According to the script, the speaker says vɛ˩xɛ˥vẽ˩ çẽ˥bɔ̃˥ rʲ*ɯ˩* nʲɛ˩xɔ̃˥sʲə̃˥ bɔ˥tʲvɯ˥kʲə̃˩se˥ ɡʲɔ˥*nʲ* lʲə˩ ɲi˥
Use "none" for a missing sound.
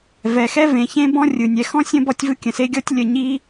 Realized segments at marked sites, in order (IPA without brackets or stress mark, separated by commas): ɯ˩, tʲ